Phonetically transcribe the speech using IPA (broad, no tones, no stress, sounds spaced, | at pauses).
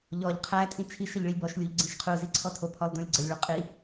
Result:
ʎ ɔ ʎ qʰ æ tʼ ĩ t͡ʃʰ i ʃ ə ʎ ɭ i lʲ b ɔ ʃ lʲ u ʎ ɡ͡ǀ ĩ ʃ qʰ u z i ǀʰ ɔ tʰ o pʰ ɔ lˠ d õ lʲ ɡ͡ǀ ə lʲ ɭ u qʼ i